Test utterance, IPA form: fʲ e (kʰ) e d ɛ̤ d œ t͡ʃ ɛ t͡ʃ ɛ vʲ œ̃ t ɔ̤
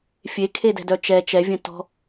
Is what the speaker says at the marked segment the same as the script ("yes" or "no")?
yes